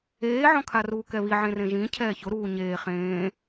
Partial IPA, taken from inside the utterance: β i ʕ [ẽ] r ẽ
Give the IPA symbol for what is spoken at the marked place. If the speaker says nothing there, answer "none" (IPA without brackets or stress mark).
ẽ